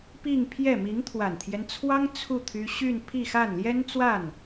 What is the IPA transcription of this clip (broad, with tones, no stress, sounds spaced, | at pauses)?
p i˥˧ ŋ pʰ j ɛ˥˩ m i˧˥ ŋ t̪ʰ w a˨˩ n t̪ʰ j ɛ˦ n t͡sʰ w ɑ˥ ŋ t͡sʰ u˥˩ t̪ʰ y˥ ɕ y˥˧ n pʰ i˥˧ x a˥˩ n l j ɛ˥ n t͡s w a˥˩ n